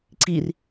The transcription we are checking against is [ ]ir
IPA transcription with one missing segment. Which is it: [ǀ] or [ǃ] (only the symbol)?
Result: ǀ